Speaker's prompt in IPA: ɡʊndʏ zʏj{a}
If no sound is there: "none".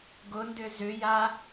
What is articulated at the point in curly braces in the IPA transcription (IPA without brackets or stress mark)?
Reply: a